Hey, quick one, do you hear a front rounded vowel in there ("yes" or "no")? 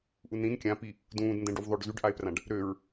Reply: yes